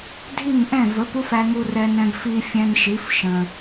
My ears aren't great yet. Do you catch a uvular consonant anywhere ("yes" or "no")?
no